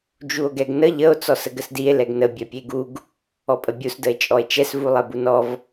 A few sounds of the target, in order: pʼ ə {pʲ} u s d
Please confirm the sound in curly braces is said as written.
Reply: no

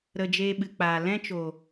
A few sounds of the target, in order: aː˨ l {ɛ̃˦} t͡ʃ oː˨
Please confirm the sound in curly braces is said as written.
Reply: yes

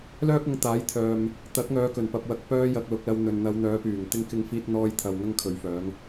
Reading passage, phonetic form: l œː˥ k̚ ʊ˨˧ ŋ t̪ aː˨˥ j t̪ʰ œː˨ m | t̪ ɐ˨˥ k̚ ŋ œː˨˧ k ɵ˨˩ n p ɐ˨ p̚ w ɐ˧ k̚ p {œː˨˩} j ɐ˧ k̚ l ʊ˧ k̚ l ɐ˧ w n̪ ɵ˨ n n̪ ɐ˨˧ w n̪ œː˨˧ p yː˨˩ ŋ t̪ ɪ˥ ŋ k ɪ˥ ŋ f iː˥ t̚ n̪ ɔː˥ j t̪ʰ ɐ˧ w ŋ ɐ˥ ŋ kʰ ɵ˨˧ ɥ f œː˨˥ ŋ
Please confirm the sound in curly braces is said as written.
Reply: no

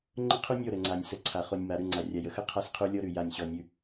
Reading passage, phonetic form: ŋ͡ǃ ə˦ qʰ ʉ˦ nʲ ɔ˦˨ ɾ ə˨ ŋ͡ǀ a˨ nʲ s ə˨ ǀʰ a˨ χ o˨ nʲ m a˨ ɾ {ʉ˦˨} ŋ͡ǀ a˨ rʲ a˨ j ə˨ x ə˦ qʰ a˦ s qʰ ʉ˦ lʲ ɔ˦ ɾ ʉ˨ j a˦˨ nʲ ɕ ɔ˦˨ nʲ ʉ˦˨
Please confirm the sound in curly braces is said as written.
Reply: yes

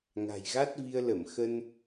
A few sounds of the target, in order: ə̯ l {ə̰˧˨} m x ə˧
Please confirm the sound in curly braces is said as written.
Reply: no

